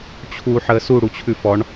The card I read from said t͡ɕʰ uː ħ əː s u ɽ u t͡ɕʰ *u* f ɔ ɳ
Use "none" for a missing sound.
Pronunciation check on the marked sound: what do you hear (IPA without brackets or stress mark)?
ʉ